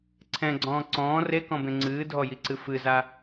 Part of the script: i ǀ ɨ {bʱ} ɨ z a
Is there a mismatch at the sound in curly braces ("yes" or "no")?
yes